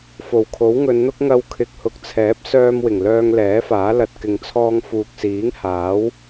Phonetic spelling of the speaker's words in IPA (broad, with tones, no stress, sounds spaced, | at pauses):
f o˨˩ w kʰ o˨˥ w ŋ ɵ˨˧ n n̪ ʊ˥ k̚ ŋ ɐ˧ w kʰ ɪ˨ k̚ h ʊ˨ k̚ t͡sʰ ɛː˨˥ p̚ s œː˧ m w ɪ˨˩ ŋ l œː˧ ŋ l ɛː˨˥ f aː˨˥ l ɐ˧ t̚ k ɪ˨ ŋ t͡sʰ ɔː˧ ŋ f uː˨ k̚ s iː˨˥ ŋ h aː˨˥ w